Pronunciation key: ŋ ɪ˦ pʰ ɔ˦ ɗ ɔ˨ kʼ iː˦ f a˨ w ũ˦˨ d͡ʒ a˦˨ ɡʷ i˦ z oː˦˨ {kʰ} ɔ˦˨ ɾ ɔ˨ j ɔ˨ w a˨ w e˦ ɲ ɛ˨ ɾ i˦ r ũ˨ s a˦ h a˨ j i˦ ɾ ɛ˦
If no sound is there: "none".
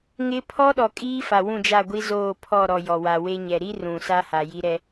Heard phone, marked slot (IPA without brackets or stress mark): pʰ